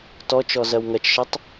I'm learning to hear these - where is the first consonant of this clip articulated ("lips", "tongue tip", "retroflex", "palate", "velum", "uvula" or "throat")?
tongue tip